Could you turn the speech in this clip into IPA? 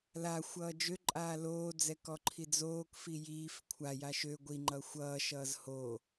l a xʷ ʌː d͡ʒ ø ǃʼ aː l oː d͡z ɛ k ɔ ǃʰ i d͡z oː k f i j iː f kʷʰ a j a ʃ ø ɡʷ i ŋ͡ǃ ʌ xʷ ʌː ʃ ʌː z h o

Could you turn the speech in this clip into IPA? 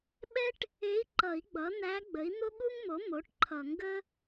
ɓ ɛ˥ ʈ | e˧˥ i̯ ǃ ʌ˨˩˦ i̯ ɡ͡b ʌ˩˥ n̪ æ˧˥ ɡ͡b ə˩˥ i̯ n̪ o˥ ɠ u˥ ŋ m o˩˥ m o˩˥ ʈ ǃʰ ʌ˨˩˦ ŋ ɡ ə˥

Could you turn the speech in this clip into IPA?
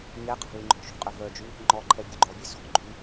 ɲ ɛ qʰ ɔ̤ l y ŋ͡ǃ ɔ̤ ʃ ṳ qʼ œ v œ d͡ʒ ʉ | ŋ͡ǃ ɔ ǃʰ ɛ bʲ u ɡ͡ǃ ɔ bʲ ɛ s ɔ̤ ɡ͡ǃ y

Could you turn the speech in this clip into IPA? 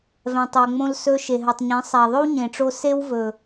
v ɛ̃˧ tˤ o˧ ŋ͡m õ˦ l s ɵ˧ ʃ e˨ ɦ ɵ˨ tˤ ɲ ẽ˨˦ sˤ æ˨ ðˤ ɵ˦ w ɲ ẽ˨ ʈ͡ʂ o˧ s e˦ w v ɵ˨

